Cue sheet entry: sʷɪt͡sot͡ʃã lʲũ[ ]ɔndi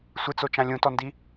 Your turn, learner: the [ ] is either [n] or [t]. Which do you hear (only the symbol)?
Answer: t